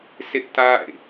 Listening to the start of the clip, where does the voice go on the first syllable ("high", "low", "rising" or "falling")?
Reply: high